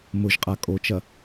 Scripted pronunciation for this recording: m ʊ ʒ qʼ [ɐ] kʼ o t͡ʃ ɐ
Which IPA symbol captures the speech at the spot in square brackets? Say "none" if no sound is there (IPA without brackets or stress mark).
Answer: a